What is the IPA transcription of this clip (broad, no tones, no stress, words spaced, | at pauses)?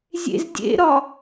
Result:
zʲḛzdʲḛɾɒ